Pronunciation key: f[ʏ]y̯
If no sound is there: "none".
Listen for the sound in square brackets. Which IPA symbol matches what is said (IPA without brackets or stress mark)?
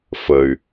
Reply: ə